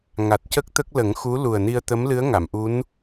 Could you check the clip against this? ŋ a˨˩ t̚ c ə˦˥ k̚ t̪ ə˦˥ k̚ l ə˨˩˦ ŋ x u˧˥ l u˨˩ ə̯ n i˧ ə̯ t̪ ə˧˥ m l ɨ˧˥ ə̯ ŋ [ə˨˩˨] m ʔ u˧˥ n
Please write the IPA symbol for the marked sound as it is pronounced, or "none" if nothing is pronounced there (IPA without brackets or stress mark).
a˨˩˨